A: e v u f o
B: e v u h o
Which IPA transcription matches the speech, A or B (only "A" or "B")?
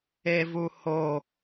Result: B